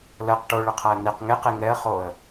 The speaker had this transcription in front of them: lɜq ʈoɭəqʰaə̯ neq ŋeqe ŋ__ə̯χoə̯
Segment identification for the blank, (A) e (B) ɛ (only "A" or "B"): B